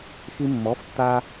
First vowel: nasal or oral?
oral